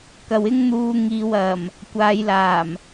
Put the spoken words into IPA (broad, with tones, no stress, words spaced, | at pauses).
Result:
kɐ˨wɪ˥ŋn̪uː˧ŋiː˨w ɐ˨˩m | kʷaː˨˧jlaː˨˩m